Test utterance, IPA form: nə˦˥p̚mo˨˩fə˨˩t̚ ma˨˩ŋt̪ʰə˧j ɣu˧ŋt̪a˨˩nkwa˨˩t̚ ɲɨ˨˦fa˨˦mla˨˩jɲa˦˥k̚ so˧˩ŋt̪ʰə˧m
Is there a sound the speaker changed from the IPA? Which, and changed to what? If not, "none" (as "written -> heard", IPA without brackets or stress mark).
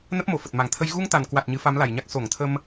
none